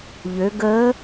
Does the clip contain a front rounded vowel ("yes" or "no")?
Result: yes